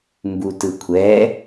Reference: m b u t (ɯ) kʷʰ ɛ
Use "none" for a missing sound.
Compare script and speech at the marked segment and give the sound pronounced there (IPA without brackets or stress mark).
ɯ